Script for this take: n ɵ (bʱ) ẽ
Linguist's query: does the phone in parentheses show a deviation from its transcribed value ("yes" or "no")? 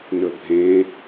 no